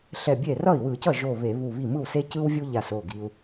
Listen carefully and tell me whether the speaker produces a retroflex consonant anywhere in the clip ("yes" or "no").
no